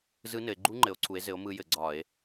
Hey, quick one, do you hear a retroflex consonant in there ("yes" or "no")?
no